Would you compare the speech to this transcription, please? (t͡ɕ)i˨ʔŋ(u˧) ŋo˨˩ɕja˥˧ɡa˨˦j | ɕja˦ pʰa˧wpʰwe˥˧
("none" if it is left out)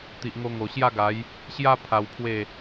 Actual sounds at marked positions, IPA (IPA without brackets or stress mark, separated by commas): t̪, o˧